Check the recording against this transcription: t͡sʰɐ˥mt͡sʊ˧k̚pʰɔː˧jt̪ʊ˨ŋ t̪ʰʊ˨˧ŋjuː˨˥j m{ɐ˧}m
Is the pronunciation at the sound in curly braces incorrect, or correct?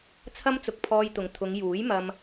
correct